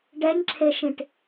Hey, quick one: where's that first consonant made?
retroflex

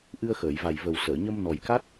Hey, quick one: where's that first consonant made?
throat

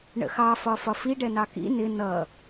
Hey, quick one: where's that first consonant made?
retroflex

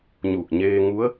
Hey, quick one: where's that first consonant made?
palate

